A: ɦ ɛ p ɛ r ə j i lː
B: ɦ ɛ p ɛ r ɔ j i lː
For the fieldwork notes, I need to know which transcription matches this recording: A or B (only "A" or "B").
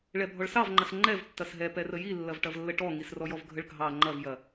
A